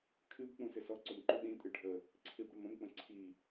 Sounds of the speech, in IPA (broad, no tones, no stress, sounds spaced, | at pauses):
kʰ ɨ b k͡p ũ s ɪ s ɔ ǀ ʊ m ǃ u ɗ ĩ tʼ ɨ ɖʱ ə | ǀʰ i b ɽ ə m ə̃ m k͡p ə̃ ǀʰ i